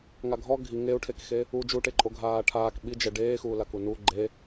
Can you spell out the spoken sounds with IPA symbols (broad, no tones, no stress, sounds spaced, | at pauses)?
ŋ a ɡʱ ɔ ɡʱ i ŋ e u̯ ʈʰ e k x e | u d͡ʒ u ʈ e ǃʼ o ɡʱ aː ʈʰ aː k ɓ i d͡ʒ ɛ ɖ eː x uː l a k u n u ɡ͡ǃ e